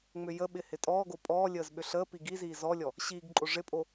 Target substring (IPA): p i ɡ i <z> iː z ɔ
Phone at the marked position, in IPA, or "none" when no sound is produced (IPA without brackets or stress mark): z